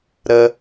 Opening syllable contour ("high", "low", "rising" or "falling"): high